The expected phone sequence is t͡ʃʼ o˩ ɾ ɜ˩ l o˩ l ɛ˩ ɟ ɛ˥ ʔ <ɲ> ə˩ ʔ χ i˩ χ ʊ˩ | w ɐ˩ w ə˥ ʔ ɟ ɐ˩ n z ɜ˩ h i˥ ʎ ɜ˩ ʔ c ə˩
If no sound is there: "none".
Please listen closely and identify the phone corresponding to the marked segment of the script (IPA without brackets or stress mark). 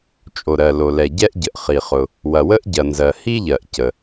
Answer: ɟ